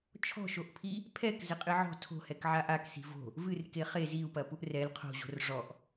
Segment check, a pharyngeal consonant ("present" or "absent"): present